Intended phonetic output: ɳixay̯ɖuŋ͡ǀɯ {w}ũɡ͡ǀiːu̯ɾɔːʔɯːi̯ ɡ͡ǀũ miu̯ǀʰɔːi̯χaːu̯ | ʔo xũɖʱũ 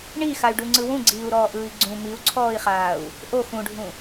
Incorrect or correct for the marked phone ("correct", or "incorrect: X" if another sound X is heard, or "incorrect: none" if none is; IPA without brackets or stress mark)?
correct